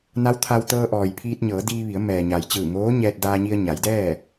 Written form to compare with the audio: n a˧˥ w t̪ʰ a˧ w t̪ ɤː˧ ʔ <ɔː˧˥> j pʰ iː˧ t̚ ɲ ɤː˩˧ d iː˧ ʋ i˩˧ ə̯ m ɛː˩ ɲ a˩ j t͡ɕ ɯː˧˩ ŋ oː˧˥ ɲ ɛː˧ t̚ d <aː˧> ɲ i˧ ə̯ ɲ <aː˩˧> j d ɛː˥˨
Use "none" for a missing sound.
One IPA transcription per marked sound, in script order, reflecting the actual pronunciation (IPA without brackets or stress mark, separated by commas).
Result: ɔː˩, aː˧, a˩˧